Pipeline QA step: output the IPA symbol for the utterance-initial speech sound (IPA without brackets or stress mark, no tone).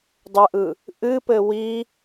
dˤ